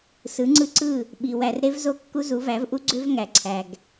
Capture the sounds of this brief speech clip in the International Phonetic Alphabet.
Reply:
s ɯ˨˦ ŋ͡ǀ ɯ˦ ǀ ɯ˦˨ | ɓ i˨ w æ˨ r ɾ e˦ v z o˦ kː u˦ z u˨˦ v æ˨˦ v ʔ u˦ ɡ͡ǀ ø˦ v ŋ æ˨ ǀʰ æ˨ ɡ

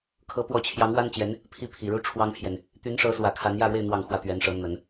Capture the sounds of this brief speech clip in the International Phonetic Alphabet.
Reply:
kʰ ɤ˧˥ p w ɔ˧˥ t͡ɕʰ j ɑ˧˥ ŋ w a˥ n t͡ɕ j ɛ˧˥ n | pʰ i˥˩ pʰ i˨˩ ɻ u˥˩ ʈ͡ʂʰ w ɑ˥ ŋ pʰ j ɛ˨ n | t̪ y˧˥ n ʂ ɤ˧˥ s w ä˨˩ kʰ a˧˥ n j ä˥˧ ɻ w e˥˧ ɪ̯ n̪ w ɑ˥˩ ŋ x w ä˥ t̪ ɥ ɛ˧˥ n ʂ ɤ˧˥ n̪ ə˨˩˦ n

